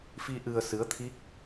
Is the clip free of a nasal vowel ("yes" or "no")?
yes